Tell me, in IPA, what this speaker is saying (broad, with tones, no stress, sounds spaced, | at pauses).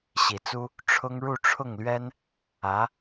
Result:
ɕ i˨˩ t͡s u˥ | ʈ͡ʂʰ ʊ˥ ŋ ɻ u˥˧ ʈ͡ʂʰ ʊ˥˩ ŋ l ɥ ɛ˥ n | ä˧˥